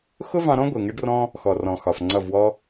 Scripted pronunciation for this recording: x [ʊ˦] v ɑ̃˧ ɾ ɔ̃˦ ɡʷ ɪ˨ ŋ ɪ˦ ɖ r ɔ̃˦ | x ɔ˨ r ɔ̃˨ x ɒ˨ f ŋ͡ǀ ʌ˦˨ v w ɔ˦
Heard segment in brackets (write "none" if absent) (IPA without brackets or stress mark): ʊ˦